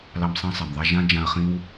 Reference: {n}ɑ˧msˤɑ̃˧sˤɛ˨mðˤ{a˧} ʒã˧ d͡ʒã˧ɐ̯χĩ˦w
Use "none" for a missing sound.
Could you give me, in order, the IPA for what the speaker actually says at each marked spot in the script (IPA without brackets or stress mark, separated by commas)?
l, a˧